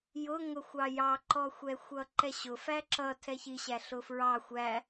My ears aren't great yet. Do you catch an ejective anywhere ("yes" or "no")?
no